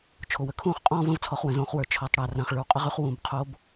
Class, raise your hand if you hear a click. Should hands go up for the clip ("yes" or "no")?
no